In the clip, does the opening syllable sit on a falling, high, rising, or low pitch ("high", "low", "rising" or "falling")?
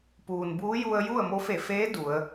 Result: low